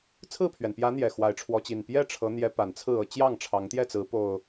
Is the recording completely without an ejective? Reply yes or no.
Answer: yes